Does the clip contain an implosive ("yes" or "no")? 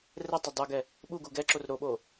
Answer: yes